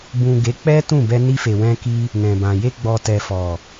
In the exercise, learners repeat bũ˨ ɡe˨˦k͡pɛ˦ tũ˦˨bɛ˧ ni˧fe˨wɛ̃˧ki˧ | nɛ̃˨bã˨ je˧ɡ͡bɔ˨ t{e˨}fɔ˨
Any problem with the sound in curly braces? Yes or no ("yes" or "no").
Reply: yes